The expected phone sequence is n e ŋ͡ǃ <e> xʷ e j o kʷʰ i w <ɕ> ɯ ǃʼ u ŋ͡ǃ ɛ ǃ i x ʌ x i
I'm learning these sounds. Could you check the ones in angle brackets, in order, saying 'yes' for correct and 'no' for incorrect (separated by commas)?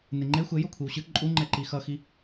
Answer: yes, yes